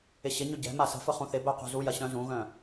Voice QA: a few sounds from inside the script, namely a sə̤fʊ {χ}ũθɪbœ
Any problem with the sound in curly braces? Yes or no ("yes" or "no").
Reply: no